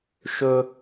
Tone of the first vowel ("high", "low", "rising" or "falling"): high